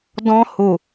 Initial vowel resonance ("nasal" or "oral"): nasal